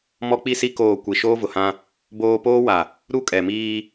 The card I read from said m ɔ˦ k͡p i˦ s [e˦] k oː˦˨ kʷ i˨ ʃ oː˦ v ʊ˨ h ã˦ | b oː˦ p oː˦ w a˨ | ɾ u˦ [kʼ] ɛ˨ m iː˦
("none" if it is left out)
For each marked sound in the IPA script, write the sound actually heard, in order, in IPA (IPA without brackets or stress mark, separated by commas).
i˦, kʼ